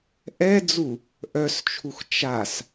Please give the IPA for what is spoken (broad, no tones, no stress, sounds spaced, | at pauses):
ʔ ɛ d͡z u | ʔ œ s t͡ʃʰ u x t͡ʃ a s